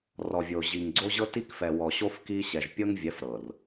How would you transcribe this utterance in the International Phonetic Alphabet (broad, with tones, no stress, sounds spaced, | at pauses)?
r ɔ˨ vʲ o˨ ʑ i˨ ŋ ɡ͡ǀ o˦ ʑ ɤ˦ t i˦ k f ɛ˨ w ɔ˨ ɕ o˦ f k i˦ ɕ ɛ˨ ʒ pʲ ɤ˦ ŋ vʲ ɛ˨˦ f ɾ ɤ˨ r